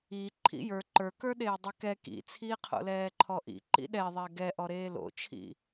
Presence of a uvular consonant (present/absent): present